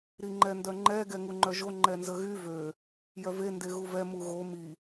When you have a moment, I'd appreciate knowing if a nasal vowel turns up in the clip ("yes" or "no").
no